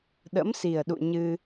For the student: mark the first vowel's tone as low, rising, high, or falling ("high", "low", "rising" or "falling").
rising